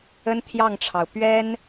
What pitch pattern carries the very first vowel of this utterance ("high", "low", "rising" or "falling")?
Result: high